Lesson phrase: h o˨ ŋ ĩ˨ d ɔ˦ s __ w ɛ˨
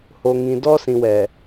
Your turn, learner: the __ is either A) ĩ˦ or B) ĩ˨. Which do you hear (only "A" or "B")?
B